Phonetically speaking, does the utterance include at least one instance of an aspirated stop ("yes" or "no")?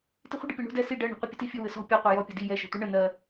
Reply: no